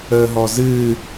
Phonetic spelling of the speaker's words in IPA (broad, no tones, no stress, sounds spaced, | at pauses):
əː ɦ ɔ z ɨ